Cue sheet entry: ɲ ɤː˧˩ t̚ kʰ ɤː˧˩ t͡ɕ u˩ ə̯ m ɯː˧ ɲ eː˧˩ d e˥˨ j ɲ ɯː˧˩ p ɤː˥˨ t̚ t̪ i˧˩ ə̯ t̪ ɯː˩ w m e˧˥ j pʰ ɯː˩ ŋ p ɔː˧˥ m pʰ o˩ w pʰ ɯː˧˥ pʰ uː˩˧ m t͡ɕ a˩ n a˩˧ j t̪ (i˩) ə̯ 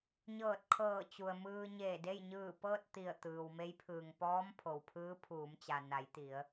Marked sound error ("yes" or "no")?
yes